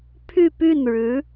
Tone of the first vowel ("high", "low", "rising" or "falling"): falling